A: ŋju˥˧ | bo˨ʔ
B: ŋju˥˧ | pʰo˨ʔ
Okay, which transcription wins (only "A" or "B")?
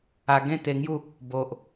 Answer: A